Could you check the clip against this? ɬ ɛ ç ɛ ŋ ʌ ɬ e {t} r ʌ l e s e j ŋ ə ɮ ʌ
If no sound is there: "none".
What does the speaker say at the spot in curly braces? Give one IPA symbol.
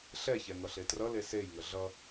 t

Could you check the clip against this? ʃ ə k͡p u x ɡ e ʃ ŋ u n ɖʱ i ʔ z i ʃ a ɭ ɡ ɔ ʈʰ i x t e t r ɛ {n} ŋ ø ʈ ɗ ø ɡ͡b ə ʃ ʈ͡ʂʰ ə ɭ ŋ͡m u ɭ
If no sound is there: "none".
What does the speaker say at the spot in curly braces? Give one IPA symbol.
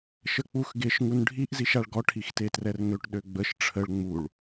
r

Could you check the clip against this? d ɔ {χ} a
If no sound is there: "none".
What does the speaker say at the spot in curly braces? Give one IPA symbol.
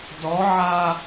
ʕ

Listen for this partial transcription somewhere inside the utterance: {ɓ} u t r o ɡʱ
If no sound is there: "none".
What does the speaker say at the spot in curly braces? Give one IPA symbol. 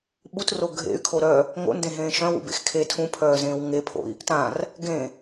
ɓ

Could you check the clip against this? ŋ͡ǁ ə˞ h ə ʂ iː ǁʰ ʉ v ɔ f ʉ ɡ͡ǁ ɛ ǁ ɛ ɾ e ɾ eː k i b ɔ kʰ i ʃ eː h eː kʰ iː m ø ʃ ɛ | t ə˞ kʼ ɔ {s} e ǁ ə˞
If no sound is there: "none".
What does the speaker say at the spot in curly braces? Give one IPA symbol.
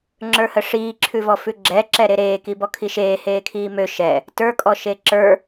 ʃ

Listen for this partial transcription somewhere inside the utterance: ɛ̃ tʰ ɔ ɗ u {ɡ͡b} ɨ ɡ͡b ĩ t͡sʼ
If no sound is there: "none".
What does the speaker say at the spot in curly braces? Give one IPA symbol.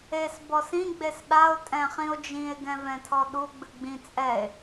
ɡ͡b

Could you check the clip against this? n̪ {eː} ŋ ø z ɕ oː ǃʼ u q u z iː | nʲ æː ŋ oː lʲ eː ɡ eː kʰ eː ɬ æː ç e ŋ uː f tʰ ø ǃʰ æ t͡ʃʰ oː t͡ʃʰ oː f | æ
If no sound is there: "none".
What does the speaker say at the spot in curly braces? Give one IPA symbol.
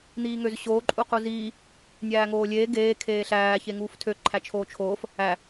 iː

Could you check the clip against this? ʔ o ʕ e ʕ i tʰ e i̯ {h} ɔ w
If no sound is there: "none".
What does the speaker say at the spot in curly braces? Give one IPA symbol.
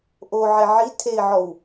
ʕ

